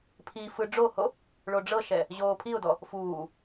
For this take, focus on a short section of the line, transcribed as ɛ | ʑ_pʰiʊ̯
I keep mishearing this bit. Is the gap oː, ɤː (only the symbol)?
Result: oː